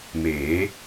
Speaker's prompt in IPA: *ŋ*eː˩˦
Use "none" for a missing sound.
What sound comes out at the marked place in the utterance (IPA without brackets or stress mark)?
m